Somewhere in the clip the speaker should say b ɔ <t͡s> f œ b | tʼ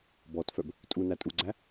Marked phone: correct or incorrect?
incorrect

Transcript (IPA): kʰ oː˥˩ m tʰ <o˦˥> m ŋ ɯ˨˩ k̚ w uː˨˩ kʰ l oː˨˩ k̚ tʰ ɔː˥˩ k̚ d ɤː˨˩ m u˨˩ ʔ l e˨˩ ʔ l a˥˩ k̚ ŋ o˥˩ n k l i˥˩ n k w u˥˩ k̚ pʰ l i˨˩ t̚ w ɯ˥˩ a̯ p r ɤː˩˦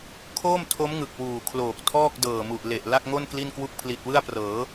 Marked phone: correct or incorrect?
correct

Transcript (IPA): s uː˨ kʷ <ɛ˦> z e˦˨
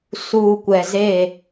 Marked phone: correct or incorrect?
incorrect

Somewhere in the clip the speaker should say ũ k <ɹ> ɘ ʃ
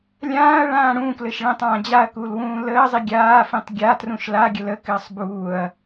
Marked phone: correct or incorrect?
incorrect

